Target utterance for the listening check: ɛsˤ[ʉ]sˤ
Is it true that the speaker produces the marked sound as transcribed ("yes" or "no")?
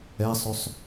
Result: yes